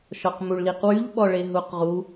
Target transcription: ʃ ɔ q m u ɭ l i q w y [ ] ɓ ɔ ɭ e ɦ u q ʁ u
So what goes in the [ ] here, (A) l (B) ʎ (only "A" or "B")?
B